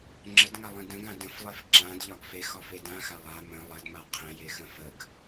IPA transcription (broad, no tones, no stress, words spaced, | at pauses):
ŋ͡ǁədŋalˠĩ də̃ɡã də̃flˠef ǁãdʎɒɡ fexɒfe dãxa lˠa mə̃ lˠədma qʰə̃jexə̃ fəɡ